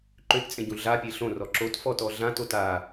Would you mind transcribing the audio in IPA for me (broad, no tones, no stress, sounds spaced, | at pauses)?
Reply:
ǃ ø t t͡sʼ ẽ ɟ ũ ɮ a pʲ e ɬ õ r ɔ ǁ o t f ɔ t ɔ ɮ ã t o t a